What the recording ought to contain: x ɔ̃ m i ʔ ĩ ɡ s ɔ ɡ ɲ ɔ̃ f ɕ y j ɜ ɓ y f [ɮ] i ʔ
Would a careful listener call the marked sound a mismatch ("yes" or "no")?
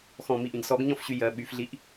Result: no